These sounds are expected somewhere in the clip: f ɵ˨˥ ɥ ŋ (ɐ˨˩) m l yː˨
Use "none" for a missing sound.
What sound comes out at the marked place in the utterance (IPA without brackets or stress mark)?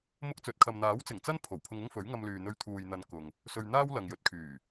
ɐ˧